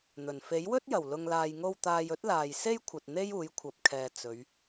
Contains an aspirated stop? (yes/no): yes